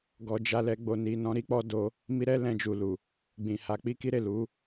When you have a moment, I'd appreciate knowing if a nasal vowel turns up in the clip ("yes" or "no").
yes